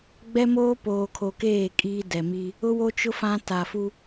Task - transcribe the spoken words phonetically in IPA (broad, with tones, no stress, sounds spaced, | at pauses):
ɡ͡b ɛ˦ m oː˦ p oː˨ kʰ o˨ k eː˦˨ kʼ iː˦ d ɛ˨ m i˦ | ʊ˦ w o˦ t͡ʃ ʊ˦ f ã˦ t a˨ f u˦